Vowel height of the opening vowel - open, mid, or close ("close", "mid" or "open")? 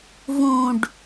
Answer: close